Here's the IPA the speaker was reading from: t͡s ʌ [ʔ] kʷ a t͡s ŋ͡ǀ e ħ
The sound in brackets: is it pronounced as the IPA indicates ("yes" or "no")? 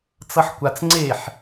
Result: no